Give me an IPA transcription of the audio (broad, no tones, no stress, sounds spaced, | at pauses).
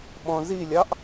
ɓ ɔ̃ z i lʲ ɑ ʔ